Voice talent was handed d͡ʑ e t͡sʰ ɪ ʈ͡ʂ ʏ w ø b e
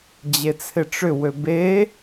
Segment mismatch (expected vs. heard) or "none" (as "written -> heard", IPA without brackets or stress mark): none